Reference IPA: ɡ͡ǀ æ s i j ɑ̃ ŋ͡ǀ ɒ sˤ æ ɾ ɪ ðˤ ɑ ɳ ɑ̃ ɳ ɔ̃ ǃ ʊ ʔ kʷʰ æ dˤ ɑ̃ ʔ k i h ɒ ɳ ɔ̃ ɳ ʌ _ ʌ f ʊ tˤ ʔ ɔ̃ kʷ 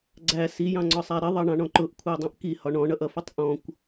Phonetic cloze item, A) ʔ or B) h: A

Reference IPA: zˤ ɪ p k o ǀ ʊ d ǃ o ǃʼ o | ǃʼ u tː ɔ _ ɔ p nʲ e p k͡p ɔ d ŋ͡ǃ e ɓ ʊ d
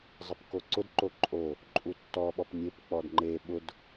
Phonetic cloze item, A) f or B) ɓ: B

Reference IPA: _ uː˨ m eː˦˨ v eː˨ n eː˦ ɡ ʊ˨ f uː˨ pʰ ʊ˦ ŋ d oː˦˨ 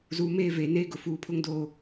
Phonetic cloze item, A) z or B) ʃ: A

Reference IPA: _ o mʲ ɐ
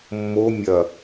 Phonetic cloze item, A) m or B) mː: B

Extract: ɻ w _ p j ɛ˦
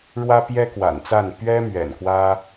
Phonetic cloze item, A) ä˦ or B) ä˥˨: A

